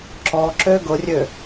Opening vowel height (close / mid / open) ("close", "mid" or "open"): mid